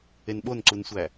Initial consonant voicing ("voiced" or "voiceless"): voiced